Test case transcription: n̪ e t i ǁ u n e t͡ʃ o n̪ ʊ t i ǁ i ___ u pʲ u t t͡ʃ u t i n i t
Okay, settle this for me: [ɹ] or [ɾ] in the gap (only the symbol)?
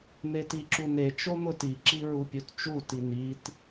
ɹ